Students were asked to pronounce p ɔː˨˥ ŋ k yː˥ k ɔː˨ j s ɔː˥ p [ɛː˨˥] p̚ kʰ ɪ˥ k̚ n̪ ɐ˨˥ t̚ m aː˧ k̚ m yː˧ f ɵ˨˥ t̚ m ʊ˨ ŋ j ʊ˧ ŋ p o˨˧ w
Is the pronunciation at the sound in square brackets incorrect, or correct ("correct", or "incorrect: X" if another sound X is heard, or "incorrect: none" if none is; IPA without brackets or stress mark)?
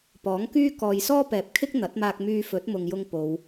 incorrect: ɛː˨